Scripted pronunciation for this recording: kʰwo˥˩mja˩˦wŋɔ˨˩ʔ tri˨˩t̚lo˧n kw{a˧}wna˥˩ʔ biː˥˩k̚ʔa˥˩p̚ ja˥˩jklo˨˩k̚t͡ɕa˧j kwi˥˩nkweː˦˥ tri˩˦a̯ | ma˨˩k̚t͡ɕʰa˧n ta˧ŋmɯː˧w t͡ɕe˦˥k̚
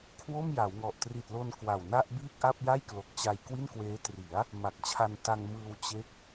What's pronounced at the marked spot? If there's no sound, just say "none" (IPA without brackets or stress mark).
a˨˩